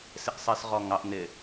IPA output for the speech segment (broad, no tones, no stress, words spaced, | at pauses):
sɪʔsˤɜsʁɔŋɑʔ n̪ɪ